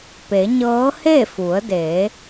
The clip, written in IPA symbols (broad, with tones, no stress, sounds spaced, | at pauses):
p e˩˧ ɲ ɤː˧˥ h e˥˨ f u˩˧ ə̯ d eː˩˧